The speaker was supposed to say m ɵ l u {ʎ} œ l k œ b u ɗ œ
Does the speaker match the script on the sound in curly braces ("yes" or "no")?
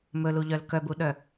yes